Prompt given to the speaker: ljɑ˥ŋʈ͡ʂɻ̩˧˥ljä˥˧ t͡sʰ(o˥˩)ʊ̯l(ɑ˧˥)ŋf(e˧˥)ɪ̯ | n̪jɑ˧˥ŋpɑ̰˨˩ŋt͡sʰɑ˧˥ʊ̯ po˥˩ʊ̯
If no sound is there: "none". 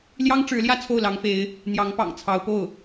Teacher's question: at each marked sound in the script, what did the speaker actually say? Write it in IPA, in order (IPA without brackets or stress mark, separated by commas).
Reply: o˥˩, ɑ˧˥, e˧˥